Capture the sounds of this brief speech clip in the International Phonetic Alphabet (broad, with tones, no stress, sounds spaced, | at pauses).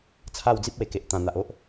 t͡sʰ a˥˧ w d͡z i˦ p̚ w e˨˩ k e˨ ʔ t̪ ã˨˩ n̪ a˨ ʔ o˦ ʔ